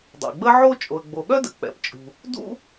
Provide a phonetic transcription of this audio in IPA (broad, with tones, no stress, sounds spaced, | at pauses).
dˤ ɛ̰˩ ɡ͡b ə˥ ʕ o˥ t͡ʃʼ o˩ ə̯ ɡ͡b o˩ ɠ œ˥ d ə̰˩ k͡p ɛ̰˩ p t͡ʃʼ ṳ˩ | d ṵ˥